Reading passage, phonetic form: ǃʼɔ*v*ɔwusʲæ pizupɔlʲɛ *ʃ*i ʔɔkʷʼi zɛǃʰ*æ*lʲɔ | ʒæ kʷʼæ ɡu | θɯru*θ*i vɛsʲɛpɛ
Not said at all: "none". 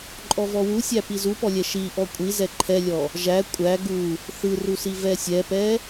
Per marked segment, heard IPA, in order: v, ʃ, ɛ, s

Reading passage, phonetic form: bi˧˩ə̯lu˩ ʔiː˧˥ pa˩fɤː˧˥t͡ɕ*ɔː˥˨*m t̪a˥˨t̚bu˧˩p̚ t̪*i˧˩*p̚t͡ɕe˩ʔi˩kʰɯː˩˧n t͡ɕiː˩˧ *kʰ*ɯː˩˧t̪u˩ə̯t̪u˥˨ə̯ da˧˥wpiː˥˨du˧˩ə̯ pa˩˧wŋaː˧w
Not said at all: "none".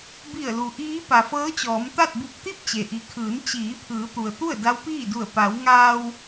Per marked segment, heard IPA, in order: ɔː˩˧, i˥˨, pʰ

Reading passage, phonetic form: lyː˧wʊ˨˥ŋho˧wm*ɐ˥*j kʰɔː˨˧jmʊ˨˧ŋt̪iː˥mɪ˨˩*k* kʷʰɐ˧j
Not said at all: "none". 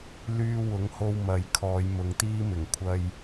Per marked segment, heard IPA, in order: ɐ˨˥, ŋ

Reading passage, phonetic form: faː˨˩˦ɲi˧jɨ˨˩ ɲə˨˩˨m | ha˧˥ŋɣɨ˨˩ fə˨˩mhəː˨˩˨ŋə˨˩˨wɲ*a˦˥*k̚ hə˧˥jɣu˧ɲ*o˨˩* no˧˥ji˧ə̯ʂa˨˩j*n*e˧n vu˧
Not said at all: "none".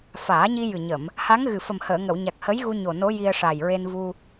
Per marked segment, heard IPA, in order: a˨˩, o˨˩, ɹ

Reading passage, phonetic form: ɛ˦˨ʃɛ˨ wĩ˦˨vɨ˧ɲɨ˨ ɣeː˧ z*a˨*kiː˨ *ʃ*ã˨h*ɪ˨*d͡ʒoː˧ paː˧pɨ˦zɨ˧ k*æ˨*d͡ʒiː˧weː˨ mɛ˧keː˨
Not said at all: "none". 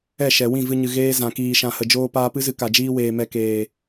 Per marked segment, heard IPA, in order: ã˨, ʃ, ə˨, a˨

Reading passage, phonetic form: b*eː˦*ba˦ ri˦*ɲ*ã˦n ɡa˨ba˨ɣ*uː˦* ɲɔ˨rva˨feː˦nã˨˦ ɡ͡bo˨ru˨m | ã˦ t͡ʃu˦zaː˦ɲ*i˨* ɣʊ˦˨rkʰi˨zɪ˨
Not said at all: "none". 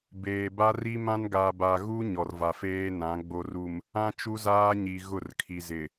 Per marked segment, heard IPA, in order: eː˨, m, u˦, i˨

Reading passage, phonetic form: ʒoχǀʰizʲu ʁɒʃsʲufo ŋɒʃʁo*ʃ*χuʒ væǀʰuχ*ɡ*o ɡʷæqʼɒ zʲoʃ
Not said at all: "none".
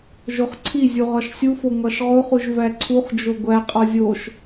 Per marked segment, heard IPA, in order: none, d͡ʒ

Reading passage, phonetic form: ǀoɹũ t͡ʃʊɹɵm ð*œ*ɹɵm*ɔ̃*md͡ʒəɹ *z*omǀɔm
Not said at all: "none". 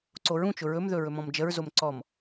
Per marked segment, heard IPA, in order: ɵ, ɔ̃, z

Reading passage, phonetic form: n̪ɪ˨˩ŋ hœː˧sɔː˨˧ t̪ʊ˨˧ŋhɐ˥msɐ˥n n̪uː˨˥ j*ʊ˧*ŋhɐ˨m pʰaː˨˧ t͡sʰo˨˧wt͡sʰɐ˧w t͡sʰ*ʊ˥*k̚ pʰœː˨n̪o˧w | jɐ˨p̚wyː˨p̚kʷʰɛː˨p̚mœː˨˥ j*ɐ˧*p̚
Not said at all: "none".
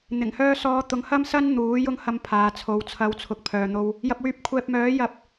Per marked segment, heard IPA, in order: ʊ˧, ʊ˨˥, ɐ˧

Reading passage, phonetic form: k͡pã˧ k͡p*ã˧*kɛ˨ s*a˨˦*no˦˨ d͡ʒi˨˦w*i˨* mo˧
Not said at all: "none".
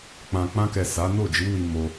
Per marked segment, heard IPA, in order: ã˧, a˨˦, i˧

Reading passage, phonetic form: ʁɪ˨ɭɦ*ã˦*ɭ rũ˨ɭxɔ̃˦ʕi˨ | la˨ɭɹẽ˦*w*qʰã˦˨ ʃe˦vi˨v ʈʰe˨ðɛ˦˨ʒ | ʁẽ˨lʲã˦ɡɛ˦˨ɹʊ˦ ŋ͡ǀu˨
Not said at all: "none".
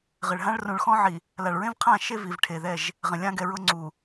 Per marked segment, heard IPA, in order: ã˦, v

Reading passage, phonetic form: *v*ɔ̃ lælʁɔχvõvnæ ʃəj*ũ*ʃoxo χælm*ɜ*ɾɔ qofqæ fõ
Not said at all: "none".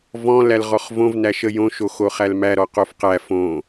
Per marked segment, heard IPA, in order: v, õ, æ

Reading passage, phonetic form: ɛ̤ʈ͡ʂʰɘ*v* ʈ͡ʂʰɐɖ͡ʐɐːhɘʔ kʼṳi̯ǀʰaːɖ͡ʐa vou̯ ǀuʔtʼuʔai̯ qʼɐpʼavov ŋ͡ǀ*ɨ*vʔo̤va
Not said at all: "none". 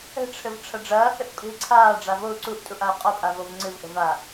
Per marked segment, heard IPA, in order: v, ɨ

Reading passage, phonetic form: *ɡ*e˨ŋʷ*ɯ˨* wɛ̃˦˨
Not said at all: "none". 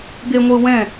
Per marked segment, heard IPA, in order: ɡ, ɯ˨

